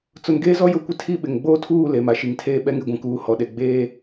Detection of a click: absent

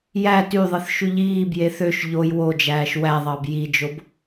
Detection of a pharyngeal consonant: absent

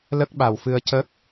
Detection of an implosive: present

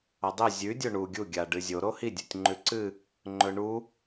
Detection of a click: present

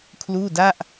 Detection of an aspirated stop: present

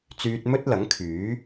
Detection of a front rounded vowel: present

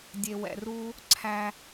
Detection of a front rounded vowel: absent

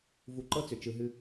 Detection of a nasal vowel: absent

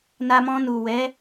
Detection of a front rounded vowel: absent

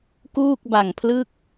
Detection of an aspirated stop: present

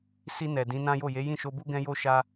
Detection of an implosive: absent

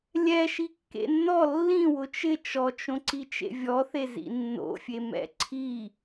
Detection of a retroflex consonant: absent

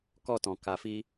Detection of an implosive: absent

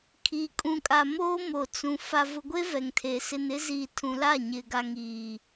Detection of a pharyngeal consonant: absent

